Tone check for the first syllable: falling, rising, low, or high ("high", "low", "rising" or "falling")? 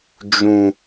low